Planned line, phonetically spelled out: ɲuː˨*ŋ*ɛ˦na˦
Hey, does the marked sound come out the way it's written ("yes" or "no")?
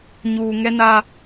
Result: yes